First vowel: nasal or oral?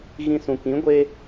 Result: nasal